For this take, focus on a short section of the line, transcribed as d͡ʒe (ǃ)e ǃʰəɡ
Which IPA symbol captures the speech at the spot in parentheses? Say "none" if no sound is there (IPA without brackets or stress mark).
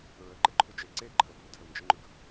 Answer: ǀ